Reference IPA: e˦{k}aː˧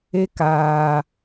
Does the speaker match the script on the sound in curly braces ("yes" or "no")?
yes